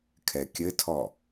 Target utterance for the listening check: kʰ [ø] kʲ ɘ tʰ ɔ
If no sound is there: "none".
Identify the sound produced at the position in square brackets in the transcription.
ɛ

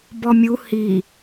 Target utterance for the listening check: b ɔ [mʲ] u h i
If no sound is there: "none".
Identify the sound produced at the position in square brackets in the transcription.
mʲ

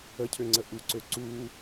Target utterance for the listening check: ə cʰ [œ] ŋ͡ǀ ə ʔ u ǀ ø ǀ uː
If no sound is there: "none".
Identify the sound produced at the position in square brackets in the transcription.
ø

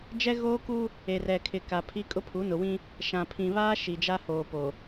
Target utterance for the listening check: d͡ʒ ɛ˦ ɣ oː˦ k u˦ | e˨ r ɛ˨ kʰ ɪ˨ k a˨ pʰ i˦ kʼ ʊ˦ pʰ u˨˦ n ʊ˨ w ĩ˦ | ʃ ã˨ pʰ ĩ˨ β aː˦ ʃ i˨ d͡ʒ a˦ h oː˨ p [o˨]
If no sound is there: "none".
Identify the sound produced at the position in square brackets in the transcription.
o˨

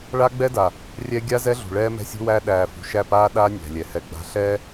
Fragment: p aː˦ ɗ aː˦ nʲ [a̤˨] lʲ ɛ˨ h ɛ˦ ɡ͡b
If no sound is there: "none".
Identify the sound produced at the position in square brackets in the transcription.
æ̤˨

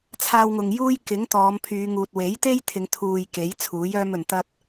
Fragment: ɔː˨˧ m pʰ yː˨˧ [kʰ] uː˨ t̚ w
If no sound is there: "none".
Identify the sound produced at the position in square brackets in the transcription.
ŋ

